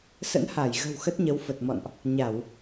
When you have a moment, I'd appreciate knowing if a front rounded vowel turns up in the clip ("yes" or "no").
no